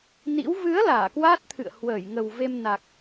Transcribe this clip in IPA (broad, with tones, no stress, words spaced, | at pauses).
nḭ˧˥w vɨ˨˦ə̯ laː˧˩kwaː˦˥t̚t̪ʰɨ̰˧˨ə̯ hwəː˧˩jŋə˨˩wve˧m na˨˩k̚